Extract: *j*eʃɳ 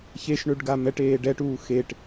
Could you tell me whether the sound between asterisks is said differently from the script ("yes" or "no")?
yes